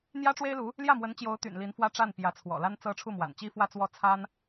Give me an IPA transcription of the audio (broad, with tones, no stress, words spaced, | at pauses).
n̪jä˥ʈ͡ʂwe˥ɪ̯lu˧˥ | ljä˥˩mwə˧˥nt͡ɕjo˧˥ʊ̯ t̪y̰˨˩nli˧˥nfwä˥ʈ͡ʂa˥˩n pjä˧˥t͡sʰwɔ̰˨˩ la˥nt͡sɤ˥ ʈ͡ʂʰu˥˩mwa̰˨˩nt͡ɕi˥ fwä˥˧t͡swɔ˥˩ t͡sʰa˥n